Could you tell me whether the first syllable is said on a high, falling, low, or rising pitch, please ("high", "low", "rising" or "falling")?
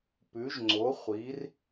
rising